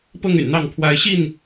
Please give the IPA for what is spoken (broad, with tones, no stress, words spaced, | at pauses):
pɤ˥˨ŋ y̰˨˩nn̪ɑ˥˨ŋ pʰwa˨˦ɪ̯ɕi˥˨n